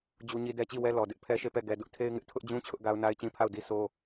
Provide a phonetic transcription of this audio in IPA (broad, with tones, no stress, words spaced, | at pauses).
d͡ʑu˦ɲi˦ dɛ˦t͡ɕi˦˨wɛ˦ lɔ˨dɪ˦ʔ pʰɛ˦ʃe˦˨pɛ˦˨ ɡɛ˨ dʊ˦ʔtʰe˦ɪ̯ŋɪ˦ʔ tʰʊ˦ʔd͡ʑũ˦ t͡ɕʰʊ˦ʔɡa˦ʊ̯ na˦ɪ̯t͡ɕĩ˦pʰa˦˨ʊ̯di˦ so˦